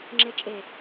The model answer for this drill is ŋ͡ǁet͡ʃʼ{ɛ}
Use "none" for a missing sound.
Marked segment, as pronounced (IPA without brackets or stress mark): e